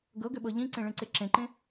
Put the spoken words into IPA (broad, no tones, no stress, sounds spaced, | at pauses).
ɡ ɤ ɡ ʏ ɓ ɤ ʎ ĩ ǀ ẽ ɭ ẽ ǀ e ǁ ẽ ǃ ẽ